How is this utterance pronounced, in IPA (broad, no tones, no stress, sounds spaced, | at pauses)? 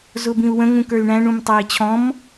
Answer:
z ʊ b ĩ u̯ w ə̃ ŋ ũ k ə˞ y̯ ɳ æ̃ ɳ ũ m tˤ æ i̯ t͡ɕʰ ɔ̃ m